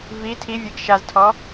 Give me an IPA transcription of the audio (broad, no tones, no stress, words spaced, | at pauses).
vi tʰivʲeɡ ʃaztʰɔ